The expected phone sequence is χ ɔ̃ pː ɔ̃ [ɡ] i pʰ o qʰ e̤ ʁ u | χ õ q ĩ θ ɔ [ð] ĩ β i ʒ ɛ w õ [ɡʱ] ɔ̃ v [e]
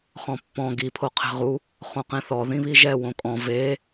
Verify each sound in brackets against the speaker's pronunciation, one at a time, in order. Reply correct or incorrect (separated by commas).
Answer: correct, correct, incorrect, correct